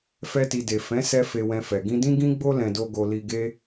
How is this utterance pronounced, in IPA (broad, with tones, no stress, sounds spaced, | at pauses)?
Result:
f ɛ˧ t i˨ d e˨ f ɛ̃˨˦ s ɛ˧ f e˧ w ɛ̃˧ f ɛ˨ ɡ ĩ˧ d ĩ˦ ɡ ĩ˦ ɡ͡b o˦ l ɛ̃˧ d o˦ ɡ o˧ l i˧ ɡ e˦